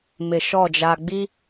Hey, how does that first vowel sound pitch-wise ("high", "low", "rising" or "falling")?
low